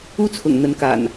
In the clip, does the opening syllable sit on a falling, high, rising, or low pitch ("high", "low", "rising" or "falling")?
high